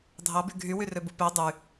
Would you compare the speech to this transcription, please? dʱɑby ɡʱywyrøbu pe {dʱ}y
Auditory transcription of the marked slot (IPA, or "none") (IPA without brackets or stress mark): dˤ